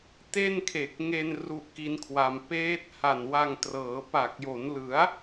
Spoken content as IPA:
te˥˩nkʰe˨˩k̚ ŋe˧n ru˦˥ʔki˦˥nkʰwa˧m peː˦˥t̚ ha˨˩nwa˧ŋtrɤː˩˦ pa˨˩k̚jo˩˦n lɯ˩˦a̯

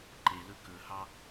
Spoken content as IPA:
ǃelɵ kɵhɑ

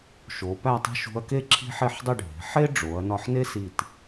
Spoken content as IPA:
ʃo˩˧ pæ˥˧tˤi̤˥˧ʃ ṳ˧ɐ̯ke˥ ǁʰi̤˥ħe˥˧ħdˤi˥˧ ɖʱe̤˩˧ħe˥ɖ͡ʐo˩˧ɐ̯nɒ˧ħ ne˥si˧˩t

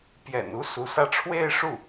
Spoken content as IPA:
pjɛ̰˨˩nu˥ su˧˥sä˥ ʈ͡ʂʰwe˥˧ɪ̯ʂu˥˩

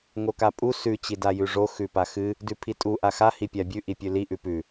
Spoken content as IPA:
ŋokapʼu sʉ t͡ɕidajʉʐo xʉpaxɨ | dʉpʰitʼu ʔaxa hipʲabʲʉ ʔipʲʉli ʔʉpʉ

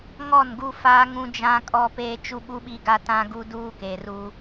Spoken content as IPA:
ŋɔ˦˨nɡu˦faː˦ŋũ˦ d͡ʒã˦kʼɔ˦peː˦ t͡ʃu˦ɓu˦ɓi˦ ɡa˦tã˦ɡu˦ duː˦keː˨ruː˦

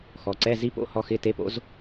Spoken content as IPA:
xɔ˩˧ǀɛ˧˥˧ zi˦˥po̰˧˥˧ hɔ˦˥xɪ˧˥˧ te˦˥po̰˦˥z

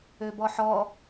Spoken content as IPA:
øbɔħɔ

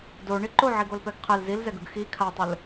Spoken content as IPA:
do ɳiǃoʕiɡ olpɛɡqʰɛl zilzɛɡ ɯɡxi kʰatˤɯl

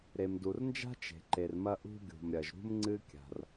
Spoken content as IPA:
ɾe˩mdu˩rnd͡ʒa̤˥ t͡ʃe̤˩ǃe˩rmɐ˥ ʔṳ˥ɡʲṳ˩mɾʲɐ˩ʒ ɾṳ˥m ŋ͡ǀɨ˥kʲa̤˩r

